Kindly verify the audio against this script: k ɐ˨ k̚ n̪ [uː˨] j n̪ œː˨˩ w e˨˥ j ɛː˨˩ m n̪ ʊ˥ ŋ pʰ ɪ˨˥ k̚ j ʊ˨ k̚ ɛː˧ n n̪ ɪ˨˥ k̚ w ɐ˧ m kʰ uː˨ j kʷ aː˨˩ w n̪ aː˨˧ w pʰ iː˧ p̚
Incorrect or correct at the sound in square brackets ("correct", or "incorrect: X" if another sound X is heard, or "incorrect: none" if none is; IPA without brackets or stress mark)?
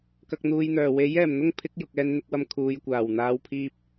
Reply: correct